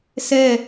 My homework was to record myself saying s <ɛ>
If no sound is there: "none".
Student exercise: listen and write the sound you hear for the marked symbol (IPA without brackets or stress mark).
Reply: ɛ